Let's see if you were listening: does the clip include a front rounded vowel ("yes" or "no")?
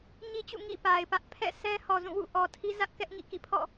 no